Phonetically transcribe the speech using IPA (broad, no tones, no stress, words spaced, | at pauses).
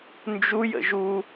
nd͡ʒu jə̰ʒu